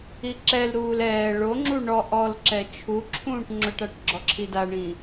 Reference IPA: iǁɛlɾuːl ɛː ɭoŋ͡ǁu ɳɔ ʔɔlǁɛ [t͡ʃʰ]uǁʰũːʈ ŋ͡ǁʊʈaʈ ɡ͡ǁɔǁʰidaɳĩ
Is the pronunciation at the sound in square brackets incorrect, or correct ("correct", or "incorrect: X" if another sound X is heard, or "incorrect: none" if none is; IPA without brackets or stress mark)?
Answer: correct